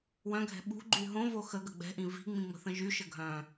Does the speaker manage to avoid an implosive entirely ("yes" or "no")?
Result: no